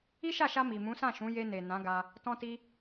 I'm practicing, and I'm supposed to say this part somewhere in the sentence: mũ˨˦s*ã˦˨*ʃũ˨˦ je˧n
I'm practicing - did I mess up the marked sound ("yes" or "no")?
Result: no